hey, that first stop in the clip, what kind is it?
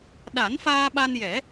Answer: implosive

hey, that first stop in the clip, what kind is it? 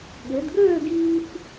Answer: implosive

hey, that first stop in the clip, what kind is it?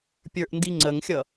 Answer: plain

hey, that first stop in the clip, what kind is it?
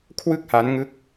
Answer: aspirated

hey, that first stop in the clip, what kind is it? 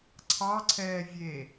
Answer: click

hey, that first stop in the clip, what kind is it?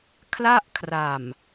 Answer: aspirated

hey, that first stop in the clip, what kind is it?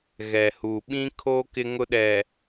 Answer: implosive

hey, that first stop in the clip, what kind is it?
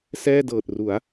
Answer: plain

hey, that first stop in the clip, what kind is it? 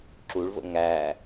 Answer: click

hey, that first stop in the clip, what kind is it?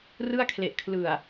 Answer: aspirated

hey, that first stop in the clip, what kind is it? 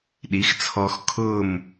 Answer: implosive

